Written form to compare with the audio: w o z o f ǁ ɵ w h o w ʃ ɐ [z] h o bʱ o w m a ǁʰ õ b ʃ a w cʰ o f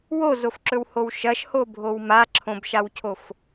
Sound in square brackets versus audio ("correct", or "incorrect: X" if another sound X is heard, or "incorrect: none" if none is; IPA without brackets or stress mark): incorrect: ʃ